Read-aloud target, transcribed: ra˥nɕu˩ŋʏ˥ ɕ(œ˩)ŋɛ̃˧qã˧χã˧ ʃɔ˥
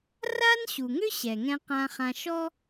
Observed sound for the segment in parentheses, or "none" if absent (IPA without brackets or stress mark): ɛ˩